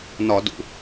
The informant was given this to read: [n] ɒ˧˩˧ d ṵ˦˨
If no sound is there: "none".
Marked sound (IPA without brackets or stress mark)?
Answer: n